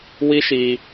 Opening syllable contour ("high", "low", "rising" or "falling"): high